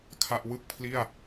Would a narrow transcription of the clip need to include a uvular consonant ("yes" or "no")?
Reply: no